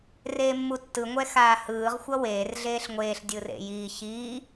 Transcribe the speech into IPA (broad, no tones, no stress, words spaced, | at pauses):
reːmːutːɯ ŋʷɛxaːhɯːʁ xʷʌweːr ɮeːɬŋʷeːɬ dʲɯrḛjiː çiː